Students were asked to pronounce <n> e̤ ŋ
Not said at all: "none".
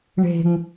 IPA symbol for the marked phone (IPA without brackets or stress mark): ɳ